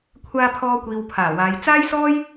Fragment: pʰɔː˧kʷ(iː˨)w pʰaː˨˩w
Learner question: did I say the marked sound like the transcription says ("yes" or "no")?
yes